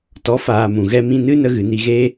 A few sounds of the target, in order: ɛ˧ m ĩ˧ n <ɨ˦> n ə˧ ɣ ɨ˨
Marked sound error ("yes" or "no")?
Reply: no